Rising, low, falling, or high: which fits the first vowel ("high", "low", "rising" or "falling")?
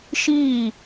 falling